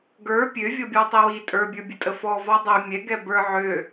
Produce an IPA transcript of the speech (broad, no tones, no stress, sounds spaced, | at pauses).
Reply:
ɡ ə˞ pʲ ø vʲ ɔ bʲ ɔ tˤ i w i tʼ ə˞ bʲ ə˞ bʲ ə tʼ ə f ɔ v ɔ dˤ ø mʲ ɛ ɡ ɛ b ə˞ ʕ ø